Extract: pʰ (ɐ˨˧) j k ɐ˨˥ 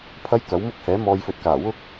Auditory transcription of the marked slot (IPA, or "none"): ɐ˥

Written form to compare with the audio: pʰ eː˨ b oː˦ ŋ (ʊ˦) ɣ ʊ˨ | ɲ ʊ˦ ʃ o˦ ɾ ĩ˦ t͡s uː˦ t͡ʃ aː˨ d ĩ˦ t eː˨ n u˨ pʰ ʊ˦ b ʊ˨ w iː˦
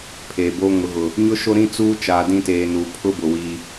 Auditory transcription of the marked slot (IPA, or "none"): ʊ˨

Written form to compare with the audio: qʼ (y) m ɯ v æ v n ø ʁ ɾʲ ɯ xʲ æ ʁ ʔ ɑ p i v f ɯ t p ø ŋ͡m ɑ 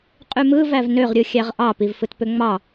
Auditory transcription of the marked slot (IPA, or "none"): y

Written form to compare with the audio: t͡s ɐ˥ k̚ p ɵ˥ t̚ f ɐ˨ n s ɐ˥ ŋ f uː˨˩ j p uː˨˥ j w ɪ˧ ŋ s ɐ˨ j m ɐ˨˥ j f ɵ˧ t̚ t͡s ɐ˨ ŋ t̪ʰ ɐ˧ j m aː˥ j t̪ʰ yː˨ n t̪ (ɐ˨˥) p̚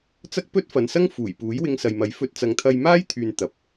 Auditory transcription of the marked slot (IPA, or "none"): ɐ˨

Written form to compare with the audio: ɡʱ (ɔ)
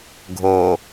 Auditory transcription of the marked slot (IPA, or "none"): o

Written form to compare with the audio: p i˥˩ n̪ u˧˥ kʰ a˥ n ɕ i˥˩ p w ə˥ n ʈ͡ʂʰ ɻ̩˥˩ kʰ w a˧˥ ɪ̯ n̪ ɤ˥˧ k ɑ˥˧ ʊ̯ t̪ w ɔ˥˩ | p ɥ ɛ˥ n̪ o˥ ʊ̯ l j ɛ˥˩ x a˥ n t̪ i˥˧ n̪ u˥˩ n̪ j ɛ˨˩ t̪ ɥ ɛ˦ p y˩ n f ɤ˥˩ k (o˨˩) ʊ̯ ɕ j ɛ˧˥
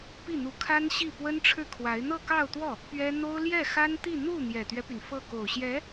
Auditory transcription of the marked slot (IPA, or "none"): o˨˩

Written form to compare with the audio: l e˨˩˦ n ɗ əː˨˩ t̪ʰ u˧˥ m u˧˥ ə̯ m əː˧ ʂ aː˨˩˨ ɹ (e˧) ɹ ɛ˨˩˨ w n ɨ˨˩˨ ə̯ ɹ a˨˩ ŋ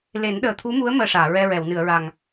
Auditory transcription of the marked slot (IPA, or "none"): ɛ˧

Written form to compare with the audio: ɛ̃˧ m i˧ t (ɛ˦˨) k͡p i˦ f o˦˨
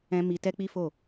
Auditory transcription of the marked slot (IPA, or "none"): ɛ˦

